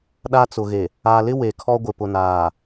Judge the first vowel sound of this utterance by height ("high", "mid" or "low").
low